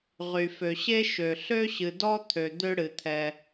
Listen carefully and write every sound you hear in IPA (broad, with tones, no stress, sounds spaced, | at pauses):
ʁ y˩ f ø˩ ɕ e˥ ʃ ø˩ ɬ ø˥ ɕ ɨ˩ d ɔ˦ t̪ʰ ø˩ d̪ ø˦ ɽ ɨ˩ t̪ʰ ɛ˨